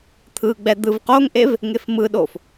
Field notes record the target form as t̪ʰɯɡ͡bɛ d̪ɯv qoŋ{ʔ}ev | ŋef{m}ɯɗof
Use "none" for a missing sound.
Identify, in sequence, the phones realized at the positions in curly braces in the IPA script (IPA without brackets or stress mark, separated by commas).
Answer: ʔ, m